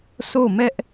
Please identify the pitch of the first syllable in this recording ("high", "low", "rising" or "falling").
falling